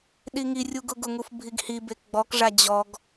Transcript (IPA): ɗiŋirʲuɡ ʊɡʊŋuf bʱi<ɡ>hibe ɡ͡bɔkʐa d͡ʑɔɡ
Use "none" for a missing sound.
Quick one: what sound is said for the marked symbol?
ɡ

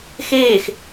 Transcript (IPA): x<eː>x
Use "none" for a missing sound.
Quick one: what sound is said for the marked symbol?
eː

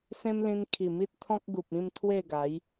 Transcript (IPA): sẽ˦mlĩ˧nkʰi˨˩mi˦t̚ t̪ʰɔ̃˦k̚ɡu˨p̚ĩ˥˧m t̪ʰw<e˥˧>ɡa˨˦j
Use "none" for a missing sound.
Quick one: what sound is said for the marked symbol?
e˥˧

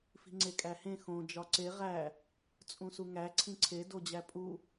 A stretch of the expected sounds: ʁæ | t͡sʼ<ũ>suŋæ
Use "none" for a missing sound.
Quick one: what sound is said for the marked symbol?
ũ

